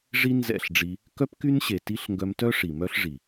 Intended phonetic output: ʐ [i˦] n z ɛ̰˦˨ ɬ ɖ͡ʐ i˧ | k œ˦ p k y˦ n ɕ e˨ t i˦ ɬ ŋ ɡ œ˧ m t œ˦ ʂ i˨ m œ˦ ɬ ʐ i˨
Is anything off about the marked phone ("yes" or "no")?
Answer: no